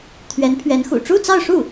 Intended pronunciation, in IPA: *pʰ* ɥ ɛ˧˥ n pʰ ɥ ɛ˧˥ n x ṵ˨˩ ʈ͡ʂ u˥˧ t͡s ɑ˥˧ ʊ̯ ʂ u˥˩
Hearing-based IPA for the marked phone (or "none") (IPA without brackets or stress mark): t̪ʰ